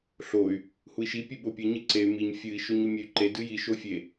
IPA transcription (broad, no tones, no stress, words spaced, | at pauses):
ɬoy̯ | hui̯ʃi pʲɨɓopʲɨ ɲɨǀey̯ miɲ fʲɨi̯ ʃoɲomʲey̯ǃe dɨji ʃofʲe